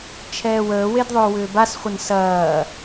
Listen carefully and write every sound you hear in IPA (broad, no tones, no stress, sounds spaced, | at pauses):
t͡ʃʰ ɛː w əː w e d ðˤ ʏː w ʏː b a s χʷ ə n s ɐː